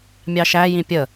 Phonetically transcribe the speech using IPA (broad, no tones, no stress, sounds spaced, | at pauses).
mʲ ɑ ʃ æ j ĩ pʲ ə